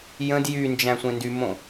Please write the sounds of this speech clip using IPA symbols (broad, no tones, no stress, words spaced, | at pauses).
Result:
jə̃d jynd͡ʒæ̃ sʷẽndymõ